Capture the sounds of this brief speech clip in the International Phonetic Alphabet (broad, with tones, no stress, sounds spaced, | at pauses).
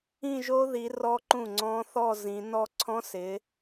ĩ˥˧ ʒ o˦˥ ð i˨˦ r ɔ˦˥ ǃ ũ˥˩ ŋ͡ǀ ɔ̃˦˥ θ ɔ˥˧ z ĩ˨˦ n ɔ˥˧ ǀʰ ɔ̃˦˥ s ɪ˨˦